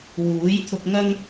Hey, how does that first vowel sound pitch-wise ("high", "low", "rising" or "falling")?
rising